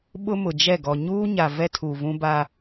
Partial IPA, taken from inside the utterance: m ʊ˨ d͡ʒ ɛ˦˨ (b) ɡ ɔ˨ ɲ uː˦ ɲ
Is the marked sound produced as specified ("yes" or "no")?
no